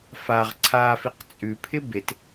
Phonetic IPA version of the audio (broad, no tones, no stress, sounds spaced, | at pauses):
f a ʁ ǀʰ a f i q t͡sʼ ʉ pʰ ɪ b e t